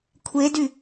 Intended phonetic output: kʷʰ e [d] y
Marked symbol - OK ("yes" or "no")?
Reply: yes